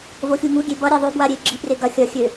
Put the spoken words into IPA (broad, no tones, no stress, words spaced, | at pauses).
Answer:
voxʲuŋuɡʲe bʌɾʲa ðˤøbwa ɾʲe ɡ͡ǁipre ɡɐ xʲɐ xʲø